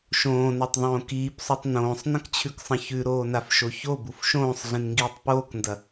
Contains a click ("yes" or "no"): no